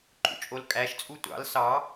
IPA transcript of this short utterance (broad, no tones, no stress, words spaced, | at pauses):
ǃʼṵt͡ʃʼolkʼæʃ t͡sʼutʷɑ̰l sɑ